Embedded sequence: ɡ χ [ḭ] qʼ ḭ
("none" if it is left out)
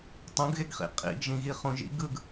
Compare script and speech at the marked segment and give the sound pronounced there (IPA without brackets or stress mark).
ḭ